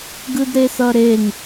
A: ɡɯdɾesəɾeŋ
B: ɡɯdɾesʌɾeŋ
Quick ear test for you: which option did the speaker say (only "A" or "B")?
B